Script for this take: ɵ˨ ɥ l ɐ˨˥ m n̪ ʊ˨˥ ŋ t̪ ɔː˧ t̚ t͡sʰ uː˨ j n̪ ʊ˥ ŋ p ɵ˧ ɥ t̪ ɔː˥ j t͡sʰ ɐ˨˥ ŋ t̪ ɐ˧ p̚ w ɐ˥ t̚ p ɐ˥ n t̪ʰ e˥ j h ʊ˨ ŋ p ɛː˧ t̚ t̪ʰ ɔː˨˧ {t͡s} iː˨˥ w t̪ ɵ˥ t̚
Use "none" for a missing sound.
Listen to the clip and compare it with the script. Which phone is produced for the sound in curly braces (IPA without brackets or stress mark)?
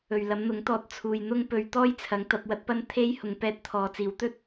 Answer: t͡s